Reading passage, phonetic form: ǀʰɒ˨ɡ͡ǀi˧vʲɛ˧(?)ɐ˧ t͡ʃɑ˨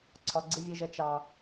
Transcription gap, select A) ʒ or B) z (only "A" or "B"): A